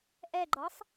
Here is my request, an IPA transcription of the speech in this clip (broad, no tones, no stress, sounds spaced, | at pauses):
ʔ ɛ ɡ͡ǃ ɔ sˤ